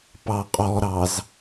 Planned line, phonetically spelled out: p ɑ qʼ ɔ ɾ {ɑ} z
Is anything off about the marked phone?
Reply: no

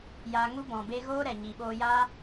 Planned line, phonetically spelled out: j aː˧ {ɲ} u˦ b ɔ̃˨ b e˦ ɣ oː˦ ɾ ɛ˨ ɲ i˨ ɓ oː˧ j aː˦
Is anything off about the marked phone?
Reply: yes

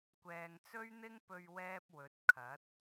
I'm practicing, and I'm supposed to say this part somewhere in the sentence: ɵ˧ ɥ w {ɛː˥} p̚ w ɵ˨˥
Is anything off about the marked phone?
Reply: no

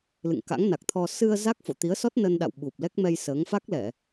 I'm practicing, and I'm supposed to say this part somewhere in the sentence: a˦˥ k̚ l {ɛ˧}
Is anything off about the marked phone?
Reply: yes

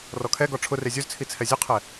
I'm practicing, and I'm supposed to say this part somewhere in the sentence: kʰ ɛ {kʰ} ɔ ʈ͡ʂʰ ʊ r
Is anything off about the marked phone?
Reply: yes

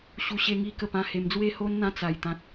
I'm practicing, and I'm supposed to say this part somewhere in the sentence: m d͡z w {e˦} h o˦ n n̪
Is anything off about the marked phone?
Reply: yes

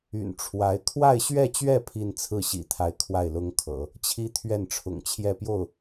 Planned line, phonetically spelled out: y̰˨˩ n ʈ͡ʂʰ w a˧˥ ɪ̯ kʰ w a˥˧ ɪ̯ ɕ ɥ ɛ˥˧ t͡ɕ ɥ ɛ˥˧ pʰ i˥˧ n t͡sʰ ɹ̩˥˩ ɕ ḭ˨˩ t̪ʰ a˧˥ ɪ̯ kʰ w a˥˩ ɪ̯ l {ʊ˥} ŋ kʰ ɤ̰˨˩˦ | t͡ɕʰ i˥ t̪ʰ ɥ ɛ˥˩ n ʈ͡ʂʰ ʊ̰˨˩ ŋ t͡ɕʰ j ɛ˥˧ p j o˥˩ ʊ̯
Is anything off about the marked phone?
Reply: no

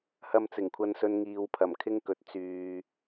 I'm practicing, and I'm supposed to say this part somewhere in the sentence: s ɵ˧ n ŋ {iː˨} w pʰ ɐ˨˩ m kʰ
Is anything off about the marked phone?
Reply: no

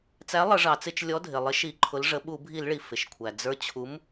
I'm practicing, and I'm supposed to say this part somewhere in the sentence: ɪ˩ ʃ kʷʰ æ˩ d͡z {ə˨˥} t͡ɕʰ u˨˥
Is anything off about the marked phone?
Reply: yes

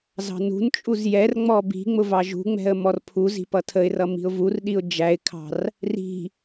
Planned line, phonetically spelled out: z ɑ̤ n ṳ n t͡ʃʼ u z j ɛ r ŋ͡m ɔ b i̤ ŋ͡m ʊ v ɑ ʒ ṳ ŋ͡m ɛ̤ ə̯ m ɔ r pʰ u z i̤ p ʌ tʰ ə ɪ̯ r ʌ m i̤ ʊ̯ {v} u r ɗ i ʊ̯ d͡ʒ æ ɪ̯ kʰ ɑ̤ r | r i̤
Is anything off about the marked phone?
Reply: no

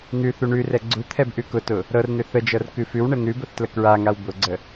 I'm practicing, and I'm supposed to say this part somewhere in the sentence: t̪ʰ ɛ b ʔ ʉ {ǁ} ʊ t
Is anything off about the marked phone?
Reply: yes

